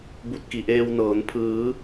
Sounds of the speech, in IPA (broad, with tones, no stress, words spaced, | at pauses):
bu˧t̚ki˩˧ʔeː˧wnɤː˩˧n pʰɯː˩˧